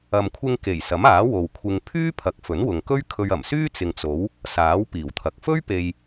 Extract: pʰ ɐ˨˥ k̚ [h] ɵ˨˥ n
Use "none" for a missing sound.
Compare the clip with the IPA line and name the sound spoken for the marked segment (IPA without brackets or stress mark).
f